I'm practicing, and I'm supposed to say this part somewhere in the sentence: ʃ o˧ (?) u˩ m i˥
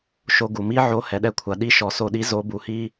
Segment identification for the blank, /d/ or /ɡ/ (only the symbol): ɡ